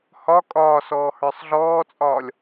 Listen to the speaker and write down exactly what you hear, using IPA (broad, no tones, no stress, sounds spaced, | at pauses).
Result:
h ɒ kʼ ɒː s ɔː h ə˞ sˤ ɮ ɔː t͡sʼ ɒː lʲ